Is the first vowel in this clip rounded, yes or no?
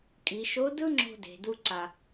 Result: no